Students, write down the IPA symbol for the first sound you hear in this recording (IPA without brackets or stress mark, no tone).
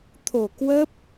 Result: t̪ʰ